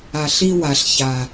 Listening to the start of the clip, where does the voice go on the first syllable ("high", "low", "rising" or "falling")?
low